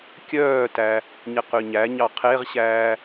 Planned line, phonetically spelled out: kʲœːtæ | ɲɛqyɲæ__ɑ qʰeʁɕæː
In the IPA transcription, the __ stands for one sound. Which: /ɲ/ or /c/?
ɲ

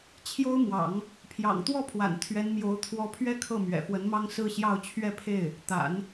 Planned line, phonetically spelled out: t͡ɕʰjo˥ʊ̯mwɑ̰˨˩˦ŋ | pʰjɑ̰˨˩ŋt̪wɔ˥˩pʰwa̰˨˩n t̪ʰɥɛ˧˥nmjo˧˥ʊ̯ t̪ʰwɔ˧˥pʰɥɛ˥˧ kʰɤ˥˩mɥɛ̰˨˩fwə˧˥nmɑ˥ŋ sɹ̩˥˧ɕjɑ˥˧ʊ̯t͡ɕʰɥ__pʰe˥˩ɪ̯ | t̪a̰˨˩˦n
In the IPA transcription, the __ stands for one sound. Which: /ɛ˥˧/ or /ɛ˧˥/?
ɛ˥˧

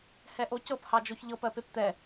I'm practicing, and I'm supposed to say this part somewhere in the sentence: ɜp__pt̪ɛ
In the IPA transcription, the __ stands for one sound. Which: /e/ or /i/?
e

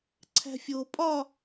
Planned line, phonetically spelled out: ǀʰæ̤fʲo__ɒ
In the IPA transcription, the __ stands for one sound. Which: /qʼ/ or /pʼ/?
pʼ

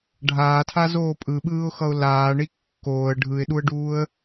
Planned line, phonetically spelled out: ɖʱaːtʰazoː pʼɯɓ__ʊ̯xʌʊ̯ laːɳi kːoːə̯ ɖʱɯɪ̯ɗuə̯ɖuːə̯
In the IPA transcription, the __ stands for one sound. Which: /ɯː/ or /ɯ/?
ɯː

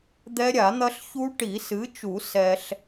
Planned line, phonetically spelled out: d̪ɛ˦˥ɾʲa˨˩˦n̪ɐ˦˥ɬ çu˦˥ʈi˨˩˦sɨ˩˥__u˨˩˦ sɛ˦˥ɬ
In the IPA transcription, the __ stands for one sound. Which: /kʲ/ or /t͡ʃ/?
t͡ʃ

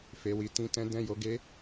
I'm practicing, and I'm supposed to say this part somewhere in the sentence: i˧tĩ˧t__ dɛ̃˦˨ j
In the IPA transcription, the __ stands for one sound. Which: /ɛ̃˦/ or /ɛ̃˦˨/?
ɛ̃˦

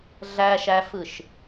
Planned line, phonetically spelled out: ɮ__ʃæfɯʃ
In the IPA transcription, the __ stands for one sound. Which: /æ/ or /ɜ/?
æ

